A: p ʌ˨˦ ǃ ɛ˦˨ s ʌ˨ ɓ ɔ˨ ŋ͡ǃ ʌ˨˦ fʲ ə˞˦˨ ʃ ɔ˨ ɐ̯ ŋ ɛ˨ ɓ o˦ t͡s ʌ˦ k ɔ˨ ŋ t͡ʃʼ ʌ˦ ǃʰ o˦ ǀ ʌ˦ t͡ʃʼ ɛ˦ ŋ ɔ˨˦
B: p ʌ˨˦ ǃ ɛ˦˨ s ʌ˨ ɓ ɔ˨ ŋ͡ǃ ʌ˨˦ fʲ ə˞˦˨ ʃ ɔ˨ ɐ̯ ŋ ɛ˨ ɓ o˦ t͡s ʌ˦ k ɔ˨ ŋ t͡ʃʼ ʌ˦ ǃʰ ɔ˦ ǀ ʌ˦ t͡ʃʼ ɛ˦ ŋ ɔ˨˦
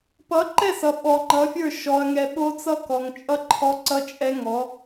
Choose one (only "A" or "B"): B